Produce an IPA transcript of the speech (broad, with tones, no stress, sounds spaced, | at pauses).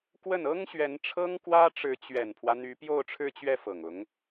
k w ə˥˩ n ɤ˥ ŋ ɕ ɥ ɛ˧˥ n ʈ͡ʂʰ ɤ˥ ŋ k w ä˥ ʈ͡ʂ ɻ̩˧˥ t͡ɕ ɥ ɛ˨˩ n pʰ w ä˦ n̪ y˧˥ p j o˥˧ ʊ̯ ʈ͡ʂʰ ɻ̩˥˧ t͡ɕ ɥ ɛ˥˩ f ɤ˨˩ ŋ ʊ˧˥ ŋ